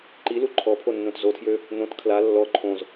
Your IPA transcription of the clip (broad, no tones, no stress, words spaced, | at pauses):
ǃilu ǃʰɔpʰonːõt zotʰjø | nõt kʰla lːɔ ǃʰõz